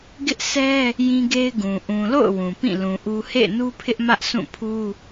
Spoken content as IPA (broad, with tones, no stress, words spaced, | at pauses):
ɡɪ˦ʔsɛ˦ | jĩ˦ɡe˦ɪ̯ɡũ˨ ʔũ˨lo̰˦˨ʊ̯ wũ˨pĩ˦˨ lũ˨ʔu˦ hḛ˦˨ɪ̯nu˦pʰɪ˦ʔ mä˦ʔsũ˦˨pʰu˦